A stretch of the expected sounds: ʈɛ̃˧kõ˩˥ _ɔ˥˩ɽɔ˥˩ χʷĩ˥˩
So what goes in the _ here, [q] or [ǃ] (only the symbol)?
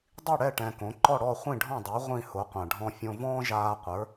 ǃ